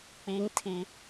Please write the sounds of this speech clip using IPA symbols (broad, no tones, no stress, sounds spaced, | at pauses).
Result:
k͡p i ŋ tʰ i